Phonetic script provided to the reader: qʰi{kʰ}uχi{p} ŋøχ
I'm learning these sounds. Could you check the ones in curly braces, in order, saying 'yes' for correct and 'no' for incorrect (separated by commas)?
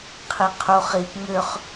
no, yes